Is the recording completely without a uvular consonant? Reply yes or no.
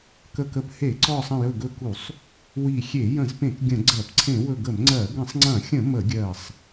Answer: yes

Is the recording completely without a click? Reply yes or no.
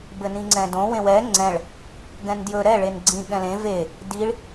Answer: no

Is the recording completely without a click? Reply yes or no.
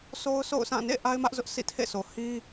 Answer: yes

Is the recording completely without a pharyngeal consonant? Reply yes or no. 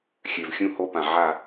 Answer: no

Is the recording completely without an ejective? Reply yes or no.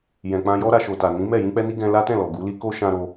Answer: yes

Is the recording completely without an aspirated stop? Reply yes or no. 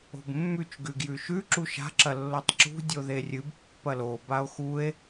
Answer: yes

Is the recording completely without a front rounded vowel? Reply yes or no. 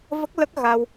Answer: yes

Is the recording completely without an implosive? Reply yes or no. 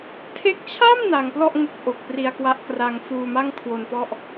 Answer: yes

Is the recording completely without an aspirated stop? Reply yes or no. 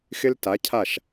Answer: no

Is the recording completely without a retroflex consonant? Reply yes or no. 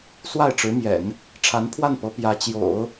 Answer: no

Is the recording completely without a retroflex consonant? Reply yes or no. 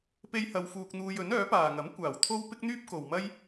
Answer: yes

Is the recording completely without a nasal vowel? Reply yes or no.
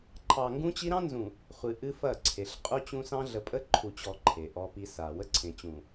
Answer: no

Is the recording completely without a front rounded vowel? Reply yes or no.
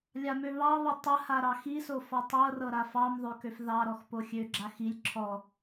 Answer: no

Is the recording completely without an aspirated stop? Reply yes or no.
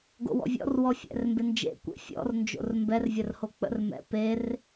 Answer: yes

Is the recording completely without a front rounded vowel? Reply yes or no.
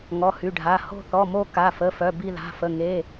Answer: no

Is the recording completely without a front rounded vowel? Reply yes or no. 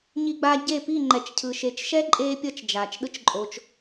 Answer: yes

